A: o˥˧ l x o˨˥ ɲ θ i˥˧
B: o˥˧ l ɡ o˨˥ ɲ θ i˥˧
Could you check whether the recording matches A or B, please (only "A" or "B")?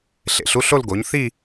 B